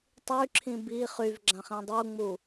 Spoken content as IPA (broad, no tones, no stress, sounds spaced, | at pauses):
tˤ y ǁʰ ĩ b i χ y v ɡ͡ǁ ã χ ĩ dˤ u ŋ͡m u